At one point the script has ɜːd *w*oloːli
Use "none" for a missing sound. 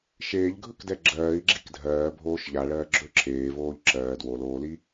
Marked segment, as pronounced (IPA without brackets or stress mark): w